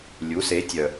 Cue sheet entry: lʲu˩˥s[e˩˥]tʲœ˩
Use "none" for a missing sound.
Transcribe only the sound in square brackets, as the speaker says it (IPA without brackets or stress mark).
e˩˥